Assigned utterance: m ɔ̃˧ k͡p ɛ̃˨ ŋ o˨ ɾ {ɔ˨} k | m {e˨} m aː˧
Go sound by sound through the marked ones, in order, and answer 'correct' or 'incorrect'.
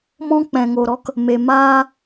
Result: incorrect, correct

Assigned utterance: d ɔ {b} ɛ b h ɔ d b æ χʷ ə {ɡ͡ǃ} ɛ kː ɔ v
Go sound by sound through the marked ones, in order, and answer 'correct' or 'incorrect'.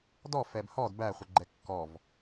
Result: incorrect, correct

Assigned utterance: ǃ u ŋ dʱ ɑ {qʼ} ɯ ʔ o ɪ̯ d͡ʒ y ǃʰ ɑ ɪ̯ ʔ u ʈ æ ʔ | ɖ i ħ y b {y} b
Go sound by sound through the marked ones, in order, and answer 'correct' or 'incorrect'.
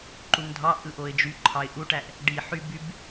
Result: incorrect, correct

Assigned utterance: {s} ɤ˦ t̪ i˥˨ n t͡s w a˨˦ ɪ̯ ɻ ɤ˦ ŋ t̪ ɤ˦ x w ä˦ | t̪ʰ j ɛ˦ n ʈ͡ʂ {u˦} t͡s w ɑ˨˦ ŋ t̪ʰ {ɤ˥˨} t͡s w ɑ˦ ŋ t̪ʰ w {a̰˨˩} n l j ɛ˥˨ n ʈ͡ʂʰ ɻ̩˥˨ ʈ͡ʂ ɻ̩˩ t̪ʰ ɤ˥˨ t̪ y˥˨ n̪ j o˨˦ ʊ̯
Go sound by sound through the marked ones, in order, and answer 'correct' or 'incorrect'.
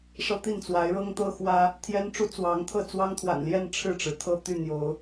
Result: incorrect, correct, correct, correct

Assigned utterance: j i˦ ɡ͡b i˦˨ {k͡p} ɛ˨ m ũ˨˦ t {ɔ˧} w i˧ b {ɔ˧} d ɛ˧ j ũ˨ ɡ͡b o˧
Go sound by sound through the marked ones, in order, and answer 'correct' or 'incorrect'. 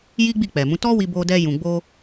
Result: correct, incorrect, incorrect

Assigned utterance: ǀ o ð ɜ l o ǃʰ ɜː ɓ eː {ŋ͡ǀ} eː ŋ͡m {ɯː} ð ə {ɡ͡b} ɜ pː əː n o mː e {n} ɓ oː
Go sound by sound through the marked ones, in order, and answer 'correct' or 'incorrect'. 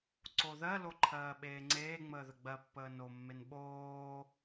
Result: correct, incorrect, correct, correct

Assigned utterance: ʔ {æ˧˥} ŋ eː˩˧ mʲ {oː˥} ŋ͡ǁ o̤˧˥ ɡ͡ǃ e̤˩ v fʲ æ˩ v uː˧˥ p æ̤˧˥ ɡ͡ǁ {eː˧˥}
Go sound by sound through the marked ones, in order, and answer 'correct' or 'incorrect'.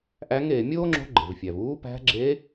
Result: correct, correct, correct

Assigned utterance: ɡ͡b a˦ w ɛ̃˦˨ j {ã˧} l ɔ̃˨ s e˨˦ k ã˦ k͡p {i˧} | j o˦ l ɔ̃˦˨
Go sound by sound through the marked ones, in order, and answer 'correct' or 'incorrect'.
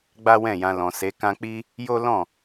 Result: correct, incorrect

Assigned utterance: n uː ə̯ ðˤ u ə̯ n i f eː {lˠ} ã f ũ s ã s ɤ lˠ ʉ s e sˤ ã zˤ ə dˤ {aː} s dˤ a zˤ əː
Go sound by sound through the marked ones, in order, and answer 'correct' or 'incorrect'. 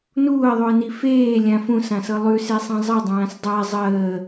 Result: incorrect, incorrect

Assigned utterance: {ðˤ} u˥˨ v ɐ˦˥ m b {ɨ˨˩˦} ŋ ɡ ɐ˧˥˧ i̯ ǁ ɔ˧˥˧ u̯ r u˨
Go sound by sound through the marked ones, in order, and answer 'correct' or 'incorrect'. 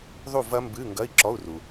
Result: correct, incorrect

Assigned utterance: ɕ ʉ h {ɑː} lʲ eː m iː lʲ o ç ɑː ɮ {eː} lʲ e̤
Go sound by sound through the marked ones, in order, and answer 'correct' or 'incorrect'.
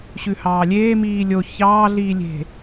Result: correct, incorrect

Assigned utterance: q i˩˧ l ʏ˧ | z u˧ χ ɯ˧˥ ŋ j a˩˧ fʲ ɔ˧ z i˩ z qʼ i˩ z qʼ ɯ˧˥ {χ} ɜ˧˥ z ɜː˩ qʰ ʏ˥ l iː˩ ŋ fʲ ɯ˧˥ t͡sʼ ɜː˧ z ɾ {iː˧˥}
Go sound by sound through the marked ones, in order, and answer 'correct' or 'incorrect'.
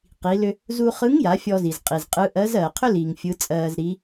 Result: incorrect, incorrect

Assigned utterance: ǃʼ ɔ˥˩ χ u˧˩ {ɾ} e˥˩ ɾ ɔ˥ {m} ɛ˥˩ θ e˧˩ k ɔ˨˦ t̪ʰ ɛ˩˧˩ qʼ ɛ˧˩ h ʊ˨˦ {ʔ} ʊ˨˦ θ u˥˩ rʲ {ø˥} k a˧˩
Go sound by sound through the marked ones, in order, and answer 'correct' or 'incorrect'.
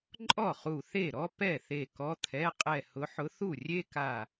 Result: incorrect, incorrect, incorrect, incorrect

